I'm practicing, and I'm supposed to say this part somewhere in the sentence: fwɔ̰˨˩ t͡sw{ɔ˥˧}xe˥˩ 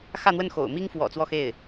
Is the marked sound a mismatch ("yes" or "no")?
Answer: no